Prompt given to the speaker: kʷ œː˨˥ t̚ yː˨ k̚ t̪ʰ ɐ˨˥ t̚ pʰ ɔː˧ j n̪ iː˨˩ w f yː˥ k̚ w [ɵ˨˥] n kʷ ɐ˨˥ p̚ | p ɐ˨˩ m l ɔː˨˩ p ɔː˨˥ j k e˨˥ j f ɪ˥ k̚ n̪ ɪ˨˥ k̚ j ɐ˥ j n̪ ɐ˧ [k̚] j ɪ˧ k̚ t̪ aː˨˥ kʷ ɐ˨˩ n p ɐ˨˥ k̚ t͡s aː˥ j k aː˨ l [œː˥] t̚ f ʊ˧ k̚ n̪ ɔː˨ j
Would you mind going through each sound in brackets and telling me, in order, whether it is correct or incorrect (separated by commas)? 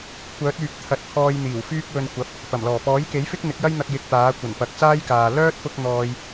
incorrect, correct, correct